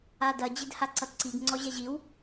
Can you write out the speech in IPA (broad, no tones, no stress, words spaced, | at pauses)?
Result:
adɐ d͡ʑedhaǀʌtǀiɡ ŋ͡ǀɔʑɛʑiw